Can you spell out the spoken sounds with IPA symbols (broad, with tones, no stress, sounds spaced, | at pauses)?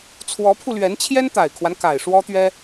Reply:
t͡sʰ w ɔ˧˥ pʰ u˧ l ɥ ɛ˧˥ n t͡ɕʰ j ɛ˥ n t̪ a˨˩ ɪ̯ kʰ w a˦ n k a˨˩ ɪ̯ ʂ w ɔ˥ t̪ ɥ ɛ˥